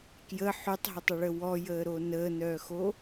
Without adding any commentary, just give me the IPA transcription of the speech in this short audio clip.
k j ə ħ y tˤ ɦ ə tˤ ə ɭ ə w ɔ j əː ɾ o n əː n œː x o

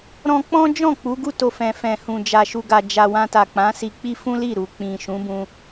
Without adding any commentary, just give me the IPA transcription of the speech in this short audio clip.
ɾ ɔ̃˧ k͡p ɔ̃˦ d͡ʒ ɔ̃˦˨ k͡p u˨˦ ɡ u˦˨ t o˧ f ɛ̃˨ f ɛ̃˨ h ũ˨ d͡ʒ a˨ ʃ u˨ ɡ a˨ d͡ʒ a˨ w ã˧ t a˨ k͡p ã˨˦ s i˧ k͡p i˦ f ũ˦ l i˦˨ ɾ u˨ k͡p ĩ˨ ʃ ũ˨˦ b ũ˧

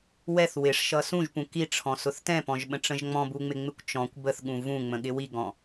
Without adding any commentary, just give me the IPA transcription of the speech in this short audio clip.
w ɛ θ w ɪ ʂ ʃ ʌ s ũ ʒ p ũ k i ʈ͡ʂʰ ɔ̃ s ʊ θ t ɛ̃ p ɔ̃ ʒ ɓ ə̃ ʈ͡ʂ ə̃ ʒ ŋ͡m ɔ̃ b u ŋ͡m ɪ ŋ͡m ɪ kʷ t͡ʃ ɔ̃ kʷ b ə θ ɠ ũ v ũ ŋ͡m ə̃ ɠ ɪ w i ɡ ɔ̃

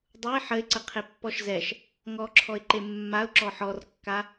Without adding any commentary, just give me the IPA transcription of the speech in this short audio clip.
dˤ u ɪ̯ ħ ə ɪ̯ ǀ ə qʰ e pː ɔ ʃ z ɛ ʃ | ŋ ɔ ǁʰ ɔ ɪ̯ ǃ e mː a ʊ̯ ǁ ɔ ħ ɔ r kː a

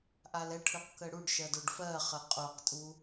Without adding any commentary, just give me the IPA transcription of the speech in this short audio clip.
ʔ a l ɛ ʈʰ ʉ q k ə ɽ u ɖ ʃ ɜ d o ɖ f ɜ χ ə qʼ o q tʼ u

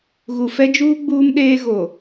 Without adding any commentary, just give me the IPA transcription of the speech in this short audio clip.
ɣ u˨ f ɛ˦ d͡ʒ uː˦ ɡ͡b uː˦ m ɗ eː˦ ɣ o˨

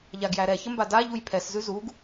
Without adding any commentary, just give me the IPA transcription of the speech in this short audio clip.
ʎ a ɡ j æ ɾ ɛ ç ə m b a d a ʎ u j pʰ ɛ s z ʉ z u ɡ

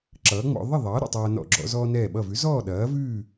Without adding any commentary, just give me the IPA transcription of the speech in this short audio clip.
ǁ ʌː˩˥ ŋ͡m ɔ̰˧ ðˤ ə˥˨ ðˤ ʌː˩˥ ɾ ə̰˥˨ tˤ ɐː˧ n ɔ̰˧˩ ɡ͡ǁ ɔ̰˧ z ɔː˧ n ɛː˧˩ ɓ ʌ˧˩ v ʉ˩˥ z ɔː˥˨ ɗ ɐː˩˥ v ʉː˥˨

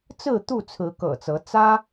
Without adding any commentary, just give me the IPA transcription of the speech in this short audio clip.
t͡s ɹ̩˥˨ t̪ u˥˨ t͡sʰ ɹ̩˨˦ k ɤ̰˨˩ t͡s ɤ˨˦ t͡s ä˦

